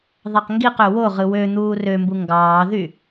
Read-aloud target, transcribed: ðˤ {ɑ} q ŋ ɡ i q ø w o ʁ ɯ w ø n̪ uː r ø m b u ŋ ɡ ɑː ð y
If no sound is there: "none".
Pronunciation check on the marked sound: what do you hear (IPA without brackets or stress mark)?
ɑ